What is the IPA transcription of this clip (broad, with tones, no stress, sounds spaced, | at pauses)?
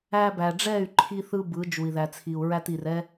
æ˧ b æ˨ ɖ͡ʐ ɛ˦˨ y̯ ǃʰ i˦ θ ɯ˦ b ɯ˨˦ d͡ʒ u˨ i̯ ð æ˨ t͡sʰ i˨ u̯ ɹ æ˦ t i˨ r ɛ˦